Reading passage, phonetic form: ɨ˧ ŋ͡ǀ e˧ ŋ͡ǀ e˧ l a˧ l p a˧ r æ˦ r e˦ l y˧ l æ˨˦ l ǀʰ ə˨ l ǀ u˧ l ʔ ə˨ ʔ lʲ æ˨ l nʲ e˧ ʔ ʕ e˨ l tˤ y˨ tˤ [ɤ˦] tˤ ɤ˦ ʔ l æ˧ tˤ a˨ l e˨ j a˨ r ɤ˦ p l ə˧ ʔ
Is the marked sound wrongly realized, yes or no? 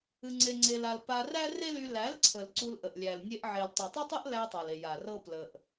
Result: no